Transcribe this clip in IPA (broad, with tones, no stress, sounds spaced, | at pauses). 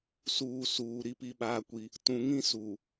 s uː˨ s uː˨ ɾ i˦ p i˦ ɓ aː˦ kʷ i˦ | t ũ˨ ŋ ĩ˦ s u˨